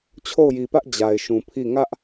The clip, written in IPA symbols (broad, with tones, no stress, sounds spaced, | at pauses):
t͡ɕʰ o˦˨ ʊ̯ j i˨ p ä˦ ʔ d͡ʑ a˨ ɪ̯ ʃ ũ˨ pʰ i˦˨ ŋ ä˦ ʔ